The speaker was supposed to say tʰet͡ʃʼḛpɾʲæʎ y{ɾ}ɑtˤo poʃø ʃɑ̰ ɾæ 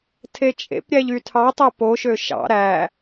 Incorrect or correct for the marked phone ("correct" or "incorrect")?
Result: incorrect